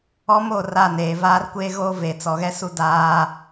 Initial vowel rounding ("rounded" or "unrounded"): rounded